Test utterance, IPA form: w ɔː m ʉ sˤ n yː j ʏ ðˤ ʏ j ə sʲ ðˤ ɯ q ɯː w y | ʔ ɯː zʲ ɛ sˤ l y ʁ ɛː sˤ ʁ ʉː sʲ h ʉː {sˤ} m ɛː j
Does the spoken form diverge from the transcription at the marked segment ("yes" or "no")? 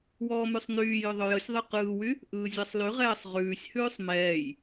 no